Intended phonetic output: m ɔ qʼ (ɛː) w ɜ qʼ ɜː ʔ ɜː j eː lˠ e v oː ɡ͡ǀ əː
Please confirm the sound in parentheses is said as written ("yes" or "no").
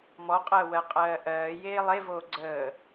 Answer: no